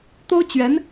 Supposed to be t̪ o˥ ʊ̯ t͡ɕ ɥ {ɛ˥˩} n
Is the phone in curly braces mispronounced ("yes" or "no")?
yes